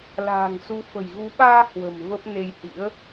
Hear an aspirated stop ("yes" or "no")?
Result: no